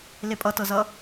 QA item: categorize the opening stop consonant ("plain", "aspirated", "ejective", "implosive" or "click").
ejective